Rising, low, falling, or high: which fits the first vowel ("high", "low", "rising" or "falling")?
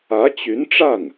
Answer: rising